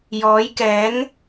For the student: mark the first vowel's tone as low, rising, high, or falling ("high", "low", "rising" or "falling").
rising